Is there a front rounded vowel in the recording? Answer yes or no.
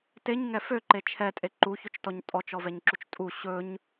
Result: yes